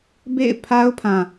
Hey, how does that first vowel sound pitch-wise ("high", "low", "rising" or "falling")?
falling